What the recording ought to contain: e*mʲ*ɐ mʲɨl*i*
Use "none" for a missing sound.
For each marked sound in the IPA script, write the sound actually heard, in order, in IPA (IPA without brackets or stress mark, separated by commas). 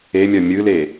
mʲ, e